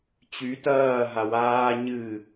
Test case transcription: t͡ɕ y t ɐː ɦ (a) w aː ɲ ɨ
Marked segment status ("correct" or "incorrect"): correct